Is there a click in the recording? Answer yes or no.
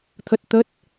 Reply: no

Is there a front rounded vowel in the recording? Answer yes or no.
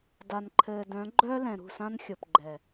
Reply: yes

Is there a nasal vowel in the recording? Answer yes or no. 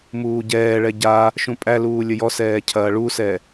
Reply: yes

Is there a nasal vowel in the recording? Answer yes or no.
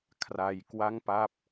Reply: no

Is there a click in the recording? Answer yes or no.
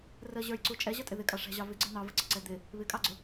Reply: yes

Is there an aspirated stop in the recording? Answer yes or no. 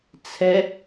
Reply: yes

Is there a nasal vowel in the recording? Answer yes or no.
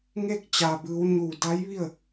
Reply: no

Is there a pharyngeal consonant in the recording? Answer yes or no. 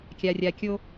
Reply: no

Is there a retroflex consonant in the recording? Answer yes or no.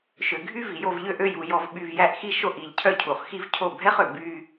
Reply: no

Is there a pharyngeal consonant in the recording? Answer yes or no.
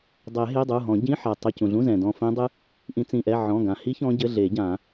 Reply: yes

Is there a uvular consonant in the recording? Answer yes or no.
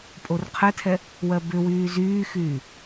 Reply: yes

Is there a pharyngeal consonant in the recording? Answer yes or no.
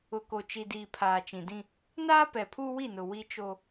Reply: no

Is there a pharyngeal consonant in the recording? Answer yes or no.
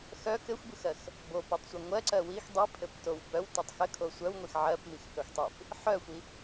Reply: yes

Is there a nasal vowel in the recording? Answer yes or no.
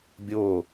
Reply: no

